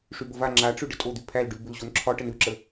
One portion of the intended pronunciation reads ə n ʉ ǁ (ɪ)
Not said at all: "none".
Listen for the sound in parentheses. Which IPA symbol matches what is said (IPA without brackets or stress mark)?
ə